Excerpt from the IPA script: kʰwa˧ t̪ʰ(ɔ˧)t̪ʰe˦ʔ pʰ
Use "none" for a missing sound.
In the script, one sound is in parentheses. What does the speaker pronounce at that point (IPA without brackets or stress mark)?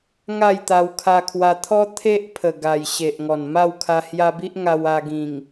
ɔ˦